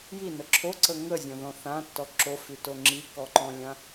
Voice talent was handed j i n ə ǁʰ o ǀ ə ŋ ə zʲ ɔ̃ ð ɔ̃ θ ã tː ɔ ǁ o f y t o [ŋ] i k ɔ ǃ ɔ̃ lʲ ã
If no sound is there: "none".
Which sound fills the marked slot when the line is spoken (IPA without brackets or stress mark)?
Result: ŋ͡ǁ